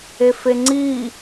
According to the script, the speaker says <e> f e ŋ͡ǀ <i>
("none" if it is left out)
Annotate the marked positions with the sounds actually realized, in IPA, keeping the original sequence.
e, i

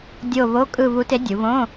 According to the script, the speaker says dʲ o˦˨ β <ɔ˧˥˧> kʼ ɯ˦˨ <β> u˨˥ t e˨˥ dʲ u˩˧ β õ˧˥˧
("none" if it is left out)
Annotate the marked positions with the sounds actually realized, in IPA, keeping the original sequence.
o˧˥˧, β

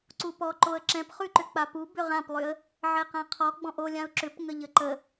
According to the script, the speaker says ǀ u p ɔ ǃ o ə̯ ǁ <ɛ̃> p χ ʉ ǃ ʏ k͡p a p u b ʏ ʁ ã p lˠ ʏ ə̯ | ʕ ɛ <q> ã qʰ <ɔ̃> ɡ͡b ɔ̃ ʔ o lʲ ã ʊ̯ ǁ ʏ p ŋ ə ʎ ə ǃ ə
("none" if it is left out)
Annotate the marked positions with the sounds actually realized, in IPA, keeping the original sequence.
ɛ̃, q, ɔ

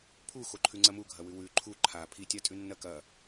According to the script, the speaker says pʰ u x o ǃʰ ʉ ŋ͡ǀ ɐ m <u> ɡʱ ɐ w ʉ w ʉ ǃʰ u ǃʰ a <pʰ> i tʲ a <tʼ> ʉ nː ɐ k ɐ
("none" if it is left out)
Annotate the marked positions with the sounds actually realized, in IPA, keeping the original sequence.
u, pʰ, tʼ

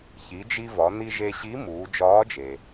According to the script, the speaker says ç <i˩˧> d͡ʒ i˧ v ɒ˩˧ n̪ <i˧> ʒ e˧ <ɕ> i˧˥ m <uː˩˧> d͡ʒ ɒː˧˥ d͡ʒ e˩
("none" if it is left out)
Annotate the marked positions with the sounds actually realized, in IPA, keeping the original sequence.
i˩˧, i˧, ɕ, uː˩˧

